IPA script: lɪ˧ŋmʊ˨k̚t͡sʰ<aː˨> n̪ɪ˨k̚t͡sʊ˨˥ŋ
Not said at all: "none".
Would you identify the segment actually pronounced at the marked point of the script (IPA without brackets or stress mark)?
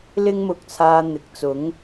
aː˨